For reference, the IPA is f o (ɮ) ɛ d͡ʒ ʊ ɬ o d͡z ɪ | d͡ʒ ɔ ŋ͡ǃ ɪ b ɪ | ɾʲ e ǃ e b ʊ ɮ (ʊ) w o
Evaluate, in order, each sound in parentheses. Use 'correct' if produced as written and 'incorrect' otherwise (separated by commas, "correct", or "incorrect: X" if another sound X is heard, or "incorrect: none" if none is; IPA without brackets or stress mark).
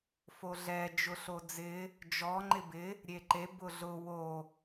correct, correct